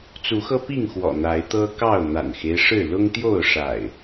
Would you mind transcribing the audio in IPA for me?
t͡s u˨˦ x ɤ˦ p i˥˨ ŋ x w ɔ̰˨˩ n̪ a˨˦ ɪ̯ t̪ ɤ˦ k ɑ˥˨ ʊ̯ n̪ a̰˨˩ n x e˦ ɪ̯ ʂ ɻ̩˥˨ l ʊ˦ ŋ t̪ j o˥˨ ʊ̯ ʂ a̰˨˩ ɪ̯

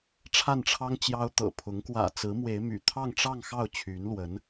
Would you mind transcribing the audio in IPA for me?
ʈ͡ʂʰ a˥˩ n ʈ͡ʂʰ ɑ˥ ŋ t͡ɕ j ɑ˥ ʊ̯ t̪ ɤ̰˨˩ pʰ ʊ˧˥ ŋ k w ä̰˨˩ t͡s ɹ̩˧˥ m w e˧˥ ɪ̯ m y̰˨˩ t̪ʰ ɑ˥˧ ŋ ʈ͡ʂ ɑ˥˧ ŋ x ɑ˥˩ ʊ̯ t͡ɕʰ y˧˥ n l w ə˧˥ n

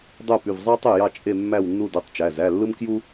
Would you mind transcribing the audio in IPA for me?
dˤ ø˥˧ p y˩˧˩ v zˤ ɑ˥ tˤ y˥˩ j ɑ˥˧ t͡ʃʼ e˥˧ mː æ˥˧ w nː u˥˧ d u˩˧˩ tˤ t͡ʃ æ˩˧˩ z æ˩˧˩ lː ɯ˥ m k j u˥

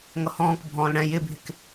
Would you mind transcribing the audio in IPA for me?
ŋ ʌ h ɔ̃ː k bʱ ɔ̃ː l ɽ ɛ̃ j ɪ bʱ ɪ k

